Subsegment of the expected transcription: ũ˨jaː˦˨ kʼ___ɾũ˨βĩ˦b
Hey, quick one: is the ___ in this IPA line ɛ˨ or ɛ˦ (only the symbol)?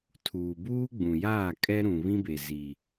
ɛ˦